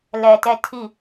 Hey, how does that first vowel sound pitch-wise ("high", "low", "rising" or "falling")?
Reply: low